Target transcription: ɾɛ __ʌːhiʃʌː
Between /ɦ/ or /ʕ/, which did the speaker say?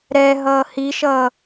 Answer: ɦ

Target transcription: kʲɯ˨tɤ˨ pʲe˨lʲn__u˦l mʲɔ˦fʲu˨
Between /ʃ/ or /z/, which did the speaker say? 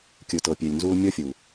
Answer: z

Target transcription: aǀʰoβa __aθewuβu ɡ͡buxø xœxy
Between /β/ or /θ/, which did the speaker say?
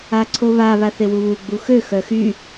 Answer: β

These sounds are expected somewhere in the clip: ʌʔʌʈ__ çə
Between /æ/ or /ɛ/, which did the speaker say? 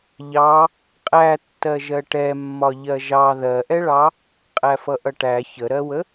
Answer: æ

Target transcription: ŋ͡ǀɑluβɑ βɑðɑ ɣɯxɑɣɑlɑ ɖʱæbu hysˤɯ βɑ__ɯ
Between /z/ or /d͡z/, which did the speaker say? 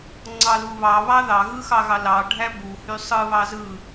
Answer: z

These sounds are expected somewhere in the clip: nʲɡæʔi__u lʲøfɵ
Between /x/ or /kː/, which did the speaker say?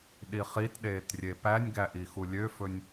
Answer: x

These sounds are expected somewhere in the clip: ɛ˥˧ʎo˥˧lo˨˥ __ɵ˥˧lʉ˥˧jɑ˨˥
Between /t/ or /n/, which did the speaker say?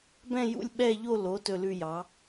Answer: t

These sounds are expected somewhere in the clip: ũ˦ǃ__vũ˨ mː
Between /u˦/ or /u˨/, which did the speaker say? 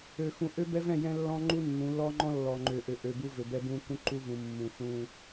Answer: u˦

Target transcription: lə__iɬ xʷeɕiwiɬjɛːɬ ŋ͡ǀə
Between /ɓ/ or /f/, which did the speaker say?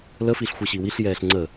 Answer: f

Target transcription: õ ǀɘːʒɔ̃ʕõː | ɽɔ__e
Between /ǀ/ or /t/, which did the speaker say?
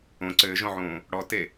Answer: t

